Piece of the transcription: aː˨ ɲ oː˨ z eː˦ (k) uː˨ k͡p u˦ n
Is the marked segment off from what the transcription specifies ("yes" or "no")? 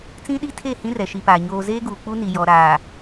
yes